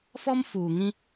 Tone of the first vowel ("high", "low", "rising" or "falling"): high